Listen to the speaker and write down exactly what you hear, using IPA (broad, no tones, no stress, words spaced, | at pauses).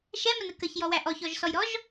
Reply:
ʃɛmənə kəçjɔwæ ʔɔçɔʒsɔjɾɔʒ